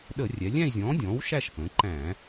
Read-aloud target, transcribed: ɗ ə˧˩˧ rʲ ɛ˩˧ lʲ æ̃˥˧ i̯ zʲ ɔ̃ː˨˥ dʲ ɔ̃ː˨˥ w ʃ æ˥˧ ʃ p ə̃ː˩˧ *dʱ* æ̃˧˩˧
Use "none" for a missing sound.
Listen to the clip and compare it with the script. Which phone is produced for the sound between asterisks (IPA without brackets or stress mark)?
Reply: ǃ